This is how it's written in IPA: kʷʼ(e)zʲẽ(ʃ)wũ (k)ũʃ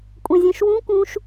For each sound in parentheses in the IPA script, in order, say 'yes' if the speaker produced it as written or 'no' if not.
no, yes, yes

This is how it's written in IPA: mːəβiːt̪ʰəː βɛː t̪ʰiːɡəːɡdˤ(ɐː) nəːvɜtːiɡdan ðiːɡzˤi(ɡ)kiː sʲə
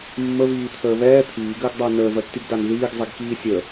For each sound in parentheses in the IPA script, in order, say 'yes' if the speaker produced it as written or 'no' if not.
no, yes

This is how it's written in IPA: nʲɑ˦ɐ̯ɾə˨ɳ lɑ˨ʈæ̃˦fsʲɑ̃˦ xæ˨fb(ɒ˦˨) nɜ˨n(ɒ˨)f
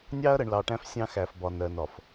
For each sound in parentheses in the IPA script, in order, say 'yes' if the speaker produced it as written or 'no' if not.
no, yes

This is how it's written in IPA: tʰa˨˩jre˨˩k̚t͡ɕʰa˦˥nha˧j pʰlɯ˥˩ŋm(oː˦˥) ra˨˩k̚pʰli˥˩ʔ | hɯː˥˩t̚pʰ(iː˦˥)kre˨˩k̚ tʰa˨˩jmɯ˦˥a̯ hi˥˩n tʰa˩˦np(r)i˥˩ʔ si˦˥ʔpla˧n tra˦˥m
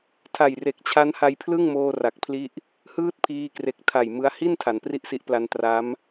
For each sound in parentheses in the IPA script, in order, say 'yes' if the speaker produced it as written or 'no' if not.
no, no, yes

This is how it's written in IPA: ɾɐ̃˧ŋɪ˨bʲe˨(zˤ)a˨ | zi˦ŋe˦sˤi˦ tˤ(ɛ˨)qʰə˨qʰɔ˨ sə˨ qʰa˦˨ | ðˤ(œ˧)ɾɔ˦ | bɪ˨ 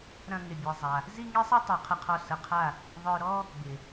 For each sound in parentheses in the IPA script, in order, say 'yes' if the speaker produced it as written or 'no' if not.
yes, yes, yes

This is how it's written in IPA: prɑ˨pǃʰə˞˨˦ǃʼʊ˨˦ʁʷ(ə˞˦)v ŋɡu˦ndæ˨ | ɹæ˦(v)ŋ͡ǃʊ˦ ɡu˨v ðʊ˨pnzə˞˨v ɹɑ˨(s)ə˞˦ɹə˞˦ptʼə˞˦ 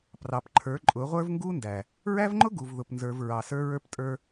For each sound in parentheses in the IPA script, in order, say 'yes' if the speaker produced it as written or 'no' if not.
yes, yes, yes

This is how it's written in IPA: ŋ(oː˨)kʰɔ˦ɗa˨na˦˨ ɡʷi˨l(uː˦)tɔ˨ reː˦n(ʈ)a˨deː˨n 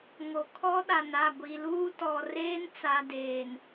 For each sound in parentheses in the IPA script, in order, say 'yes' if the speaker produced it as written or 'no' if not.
no, yes, no

